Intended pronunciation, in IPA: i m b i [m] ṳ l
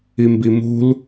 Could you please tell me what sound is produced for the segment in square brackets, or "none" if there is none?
m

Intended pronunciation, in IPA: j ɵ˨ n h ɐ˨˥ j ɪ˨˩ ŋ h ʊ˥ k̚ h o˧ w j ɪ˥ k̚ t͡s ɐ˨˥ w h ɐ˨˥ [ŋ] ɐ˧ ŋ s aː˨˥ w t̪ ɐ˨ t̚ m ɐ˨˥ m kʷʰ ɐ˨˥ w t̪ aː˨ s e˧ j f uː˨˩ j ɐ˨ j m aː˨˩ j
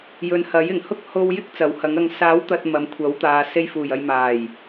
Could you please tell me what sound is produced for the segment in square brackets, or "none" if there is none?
ŋ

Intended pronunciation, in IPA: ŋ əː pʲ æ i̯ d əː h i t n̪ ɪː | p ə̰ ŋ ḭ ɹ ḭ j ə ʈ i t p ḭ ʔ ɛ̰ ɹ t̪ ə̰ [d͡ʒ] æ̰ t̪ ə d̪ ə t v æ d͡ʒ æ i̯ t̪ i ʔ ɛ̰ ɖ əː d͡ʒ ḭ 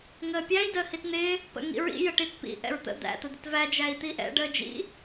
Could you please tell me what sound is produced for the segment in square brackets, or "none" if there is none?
d̪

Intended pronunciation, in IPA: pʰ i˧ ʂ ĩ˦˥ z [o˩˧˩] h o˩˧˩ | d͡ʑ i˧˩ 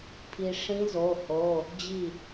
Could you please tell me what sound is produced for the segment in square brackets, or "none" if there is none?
o˩˧˩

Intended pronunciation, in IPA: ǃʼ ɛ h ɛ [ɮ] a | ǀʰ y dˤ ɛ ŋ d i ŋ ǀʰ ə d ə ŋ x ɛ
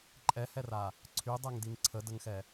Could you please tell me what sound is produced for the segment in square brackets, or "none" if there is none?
r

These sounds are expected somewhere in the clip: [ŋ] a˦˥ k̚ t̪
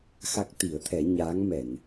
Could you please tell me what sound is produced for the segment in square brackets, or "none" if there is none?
x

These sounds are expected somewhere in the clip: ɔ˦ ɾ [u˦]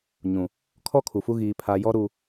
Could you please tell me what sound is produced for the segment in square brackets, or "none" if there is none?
u˨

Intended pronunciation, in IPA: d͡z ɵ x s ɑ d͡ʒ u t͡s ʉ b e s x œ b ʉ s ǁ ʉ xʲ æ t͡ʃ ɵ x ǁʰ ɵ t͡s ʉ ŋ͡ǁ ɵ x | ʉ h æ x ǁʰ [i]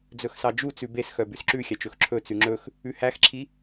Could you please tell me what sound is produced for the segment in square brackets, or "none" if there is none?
i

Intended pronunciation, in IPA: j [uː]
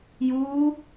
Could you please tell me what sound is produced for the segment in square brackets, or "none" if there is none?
uː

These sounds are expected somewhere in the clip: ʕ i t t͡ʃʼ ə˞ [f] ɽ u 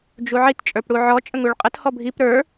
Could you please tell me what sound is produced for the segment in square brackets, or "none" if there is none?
p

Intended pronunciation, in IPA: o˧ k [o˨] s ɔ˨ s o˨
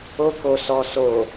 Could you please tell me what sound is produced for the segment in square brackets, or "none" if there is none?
o˨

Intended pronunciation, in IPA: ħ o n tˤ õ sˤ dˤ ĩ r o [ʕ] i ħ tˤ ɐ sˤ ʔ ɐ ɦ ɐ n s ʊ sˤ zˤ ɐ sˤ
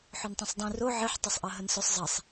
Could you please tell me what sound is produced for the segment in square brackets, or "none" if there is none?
ʕ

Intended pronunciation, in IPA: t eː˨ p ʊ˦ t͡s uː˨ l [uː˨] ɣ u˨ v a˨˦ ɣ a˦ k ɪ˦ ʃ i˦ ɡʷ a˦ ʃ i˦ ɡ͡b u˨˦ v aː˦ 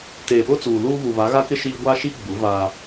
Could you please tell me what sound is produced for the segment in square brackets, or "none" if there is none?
uː˦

